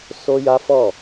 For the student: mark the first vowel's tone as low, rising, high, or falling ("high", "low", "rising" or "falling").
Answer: high